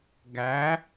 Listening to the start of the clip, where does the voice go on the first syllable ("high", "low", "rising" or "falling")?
rising